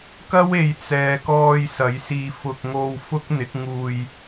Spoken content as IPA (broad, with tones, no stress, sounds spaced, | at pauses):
k ɐ˥ w e˨ j t͡s ɛː˨ k ɔː˧ j s ɐ˨˥ j s iː˧ f ʊ˧ k̚ ŋ o˧ w f ʊ˥ k̚ n̪ ɪ˨˥ k̚ ŋ uː˧ j